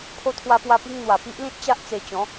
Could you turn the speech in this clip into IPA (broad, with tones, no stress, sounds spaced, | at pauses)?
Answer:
pʰ o˧ t̪ʰ w a˧ p w a˧ p i˧ ŋ n̪ w a˨˩ p i˦ ʔ l ĩ˦ t̚ t͡ɕ a˦ ʔ t͡s e˧ t͡ɕ ɔ̃˨˦